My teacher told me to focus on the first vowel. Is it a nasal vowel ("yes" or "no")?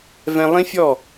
yes